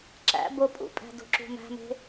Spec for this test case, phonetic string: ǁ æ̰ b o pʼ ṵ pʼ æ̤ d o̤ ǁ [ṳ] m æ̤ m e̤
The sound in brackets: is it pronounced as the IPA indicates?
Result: yes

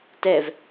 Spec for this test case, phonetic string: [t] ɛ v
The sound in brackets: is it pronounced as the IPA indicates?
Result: yes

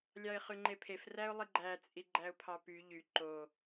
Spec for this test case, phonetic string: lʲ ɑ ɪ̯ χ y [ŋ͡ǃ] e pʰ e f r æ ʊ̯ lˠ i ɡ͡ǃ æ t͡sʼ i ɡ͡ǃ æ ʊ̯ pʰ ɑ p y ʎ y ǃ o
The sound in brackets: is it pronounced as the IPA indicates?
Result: yes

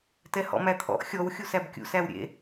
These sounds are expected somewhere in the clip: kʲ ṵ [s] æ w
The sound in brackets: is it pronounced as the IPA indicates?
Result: yes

